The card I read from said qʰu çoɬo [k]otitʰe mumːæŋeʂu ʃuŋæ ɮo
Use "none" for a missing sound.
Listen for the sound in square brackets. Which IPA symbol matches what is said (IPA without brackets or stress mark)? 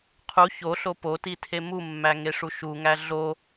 p